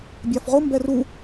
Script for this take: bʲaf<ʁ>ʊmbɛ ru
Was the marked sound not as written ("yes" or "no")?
no